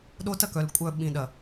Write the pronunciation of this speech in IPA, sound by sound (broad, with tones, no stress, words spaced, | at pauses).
ɗo˦tɐ˦ kœ˨lkʷʼœ˦˨ ɓĩ˨ɗɐ˨